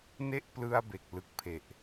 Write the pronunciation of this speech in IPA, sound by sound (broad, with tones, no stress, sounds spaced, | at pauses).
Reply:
n e˦˥ ʔ p l ɯ˧ a̯ b e˨˩ k̚ l ɯ˨˩ k̚ pʰ e˨˩ ʔ